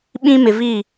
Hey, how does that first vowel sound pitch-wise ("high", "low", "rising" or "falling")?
high